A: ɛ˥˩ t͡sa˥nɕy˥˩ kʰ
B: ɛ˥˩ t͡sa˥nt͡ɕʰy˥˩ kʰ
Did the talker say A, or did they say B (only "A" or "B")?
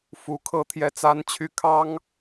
B